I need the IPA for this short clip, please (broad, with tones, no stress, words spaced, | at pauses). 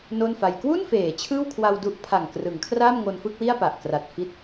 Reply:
no˥˩nfa˧j kwu˥˩nfeː˩˦ t͡ɕʰɯː˥˩wkʰwa˧wdu˦˥ʔ pʰa˨˩ŋ krɯ˩˦ŋkʰra˥˩m ŋo˧nfɯ˥˩k̚wi˥˩a̯ pa˨˩ʔkra˨˩t̚fi˦˥t̚